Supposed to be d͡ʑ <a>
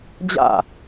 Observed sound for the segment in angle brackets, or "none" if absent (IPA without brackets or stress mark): a̰